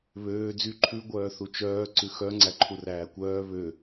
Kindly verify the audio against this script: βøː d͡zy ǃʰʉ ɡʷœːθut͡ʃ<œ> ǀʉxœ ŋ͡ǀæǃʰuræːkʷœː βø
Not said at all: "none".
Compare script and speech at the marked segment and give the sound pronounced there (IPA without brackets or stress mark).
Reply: œː